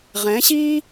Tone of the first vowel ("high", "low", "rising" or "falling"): rising